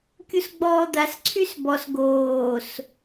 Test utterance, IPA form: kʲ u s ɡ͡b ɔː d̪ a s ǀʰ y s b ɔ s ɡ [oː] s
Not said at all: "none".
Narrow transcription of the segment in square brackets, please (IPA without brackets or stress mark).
oː